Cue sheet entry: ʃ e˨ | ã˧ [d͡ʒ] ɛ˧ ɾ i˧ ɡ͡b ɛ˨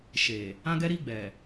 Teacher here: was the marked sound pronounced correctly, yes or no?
no